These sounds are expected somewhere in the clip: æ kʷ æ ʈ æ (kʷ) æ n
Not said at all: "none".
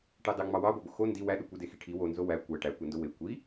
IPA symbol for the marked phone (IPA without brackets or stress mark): kʷ